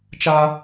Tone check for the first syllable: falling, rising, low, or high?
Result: high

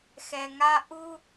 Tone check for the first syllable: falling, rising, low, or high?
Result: low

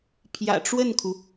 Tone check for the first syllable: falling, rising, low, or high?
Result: low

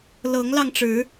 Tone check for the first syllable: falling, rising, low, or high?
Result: rising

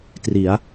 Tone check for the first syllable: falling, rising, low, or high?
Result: rising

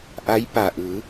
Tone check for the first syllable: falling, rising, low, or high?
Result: rising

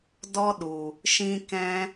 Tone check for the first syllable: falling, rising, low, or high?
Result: high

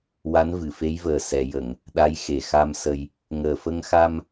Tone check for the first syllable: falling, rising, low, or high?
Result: rising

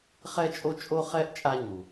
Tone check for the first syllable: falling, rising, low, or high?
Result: high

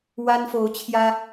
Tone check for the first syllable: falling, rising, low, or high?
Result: high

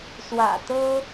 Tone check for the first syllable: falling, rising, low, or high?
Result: low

